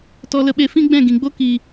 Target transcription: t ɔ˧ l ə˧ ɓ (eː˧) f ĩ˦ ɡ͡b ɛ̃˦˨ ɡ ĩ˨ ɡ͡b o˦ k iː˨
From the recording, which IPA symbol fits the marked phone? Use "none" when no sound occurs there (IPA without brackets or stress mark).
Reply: e˧